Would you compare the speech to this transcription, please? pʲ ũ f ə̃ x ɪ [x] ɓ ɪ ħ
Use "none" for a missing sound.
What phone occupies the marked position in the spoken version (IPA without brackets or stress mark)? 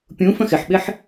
ħ